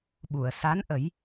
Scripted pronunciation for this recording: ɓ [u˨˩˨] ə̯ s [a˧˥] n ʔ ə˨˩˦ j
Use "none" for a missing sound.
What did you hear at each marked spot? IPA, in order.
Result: u˨˩˨, a˧˥

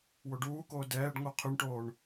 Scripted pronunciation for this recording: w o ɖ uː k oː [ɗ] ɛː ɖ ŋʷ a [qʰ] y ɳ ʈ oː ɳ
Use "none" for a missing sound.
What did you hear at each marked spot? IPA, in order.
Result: d, qʰ

